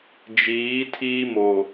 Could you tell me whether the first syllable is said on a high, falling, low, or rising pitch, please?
rising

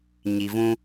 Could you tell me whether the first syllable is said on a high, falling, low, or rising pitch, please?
low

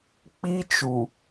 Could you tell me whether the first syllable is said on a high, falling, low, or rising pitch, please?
high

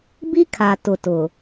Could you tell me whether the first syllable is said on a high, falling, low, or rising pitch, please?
high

